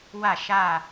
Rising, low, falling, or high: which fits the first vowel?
falling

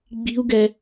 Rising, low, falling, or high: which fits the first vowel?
low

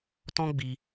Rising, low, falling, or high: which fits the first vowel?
high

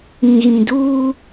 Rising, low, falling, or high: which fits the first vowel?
low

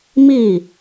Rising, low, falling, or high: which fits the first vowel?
falling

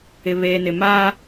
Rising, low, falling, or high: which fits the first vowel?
low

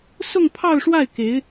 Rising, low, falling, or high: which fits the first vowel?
falling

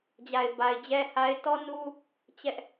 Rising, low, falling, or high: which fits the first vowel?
low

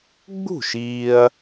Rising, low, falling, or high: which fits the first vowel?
falling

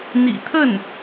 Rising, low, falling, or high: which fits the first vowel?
low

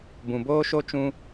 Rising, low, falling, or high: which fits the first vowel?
low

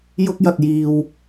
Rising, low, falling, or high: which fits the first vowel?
high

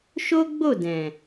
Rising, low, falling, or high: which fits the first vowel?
high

